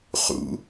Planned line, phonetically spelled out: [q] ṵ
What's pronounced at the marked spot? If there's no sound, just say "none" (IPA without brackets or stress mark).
χ